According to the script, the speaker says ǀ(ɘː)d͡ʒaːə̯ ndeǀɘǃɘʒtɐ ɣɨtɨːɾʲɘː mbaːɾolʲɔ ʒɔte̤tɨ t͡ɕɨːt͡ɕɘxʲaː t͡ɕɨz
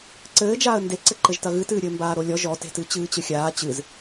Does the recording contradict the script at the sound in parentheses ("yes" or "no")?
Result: no